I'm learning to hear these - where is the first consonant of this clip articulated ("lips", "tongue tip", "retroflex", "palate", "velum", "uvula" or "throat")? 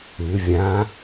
lips